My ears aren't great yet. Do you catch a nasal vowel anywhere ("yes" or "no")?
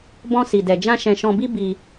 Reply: yes